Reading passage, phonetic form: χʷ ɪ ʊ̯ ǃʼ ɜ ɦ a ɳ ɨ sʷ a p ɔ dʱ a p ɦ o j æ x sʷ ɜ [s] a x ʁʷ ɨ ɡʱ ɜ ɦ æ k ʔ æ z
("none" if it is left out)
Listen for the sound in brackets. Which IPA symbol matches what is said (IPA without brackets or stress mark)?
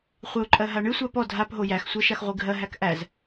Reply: ʃ